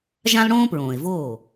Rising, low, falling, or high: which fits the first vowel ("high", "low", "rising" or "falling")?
high